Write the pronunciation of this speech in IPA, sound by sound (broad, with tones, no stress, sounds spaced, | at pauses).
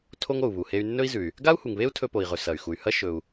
tʰ o˥ ŋ o˩ u̯ β u˩ h e˧ y̯ nː ɵ˥ i̯ z ʉ˩ y̯ | ɡ a˥ u̯ h u˩ ŋ β e˥ u̯ tʰ ɵ˧ p o˩ i̯ ʁ ɵ˩ s ɐ˩ y̯ x u˩ y̯ h ɐ˥ ʃ ɵ˩ u̯